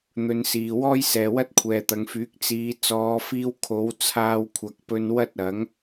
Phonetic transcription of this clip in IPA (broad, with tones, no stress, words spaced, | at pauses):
n̪ɵ˧nsiː˨ wɔː˥jsɛː˨wɐ˥t̚ kʷʰɛː˨t̪ɐ˨˧ŋfyː˨˥k̚ t͡siː˨˧ t͡sɔː˨˧fiː˧w kʰo˨˥w t͡sʰaː˧wkʷʰɐ˨k̚pɵ˧n wɐ˥t̚ ɐ˨˥ŋ